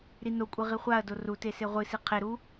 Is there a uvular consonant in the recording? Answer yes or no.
yes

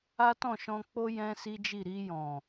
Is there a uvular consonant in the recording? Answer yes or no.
no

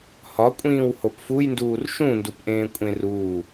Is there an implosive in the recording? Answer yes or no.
no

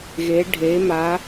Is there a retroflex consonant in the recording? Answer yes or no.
yes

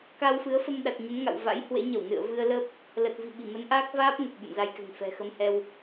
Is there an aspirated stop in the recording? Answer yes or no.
no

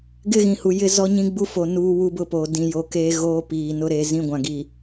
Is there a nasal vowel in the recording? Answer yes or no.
yes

